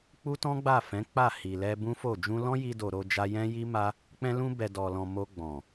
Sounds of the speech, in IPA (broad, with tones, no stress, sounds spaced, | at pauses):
k͡p u˦ t ɔ̃˦ ɡ͡b a˦˨ f ɛ̃˨˦ k͡p a˦˨ h i˨ l ɛ˧ b ũ˦ f o˦˨ d͡ʒ ũ˧ l ɔ̃˦ j i˧ d o˨ ɾ o˧ d͡ʒ a˧ j ɛ̃˦ j i˦ m a˦ | k͡p ɛ̃˧ l ũ˧ b ɛ˨ d ɔ˨ l ɔ̃˨ m o˧ ɡ͡b ɔ̃˨